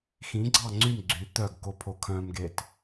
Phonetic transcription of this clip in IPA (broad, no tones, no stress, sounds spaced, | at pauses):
x ĩ ɡ͡ǀ ɑ ŋ͡ǀ y m ɡ͡ǀ y t̪ œ ɡ k o pʰ o kʰ œ̃ m ɡ e t